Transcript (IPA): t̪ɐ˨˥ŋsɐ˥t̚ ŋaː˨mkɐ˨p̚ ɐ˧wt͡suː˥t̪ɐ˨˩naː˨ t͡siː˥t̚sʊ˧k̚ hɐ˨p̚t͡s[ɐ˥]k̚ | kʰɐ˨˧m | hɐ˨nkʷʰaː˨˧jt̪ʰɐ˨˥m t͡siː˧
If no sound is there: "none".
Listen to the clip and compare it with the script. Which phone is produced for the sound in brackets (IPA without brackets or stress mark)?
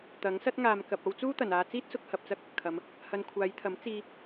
ɐ˥